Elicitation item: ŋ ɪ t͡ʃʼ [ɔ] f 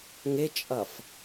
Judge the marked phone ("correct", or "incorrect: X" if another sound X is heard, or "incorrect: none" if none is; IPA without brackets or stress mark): incorrect: ʌ